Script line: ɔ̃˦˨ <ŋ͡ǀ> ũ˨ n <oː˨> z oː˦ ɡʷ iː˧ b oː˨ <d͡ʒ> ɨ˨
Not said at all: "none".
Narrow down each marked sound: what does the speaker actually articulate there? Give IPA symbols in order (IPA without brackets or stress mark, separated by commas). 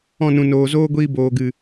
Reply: n, oː˨, ɡ